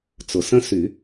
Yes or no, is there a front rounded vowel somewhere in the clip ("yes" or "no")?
yes